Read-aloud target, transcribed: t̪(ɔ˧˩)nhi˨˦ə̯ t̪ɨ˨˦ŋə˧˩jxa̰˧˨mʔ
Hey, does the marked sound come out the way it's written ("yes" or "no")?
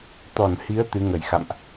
yes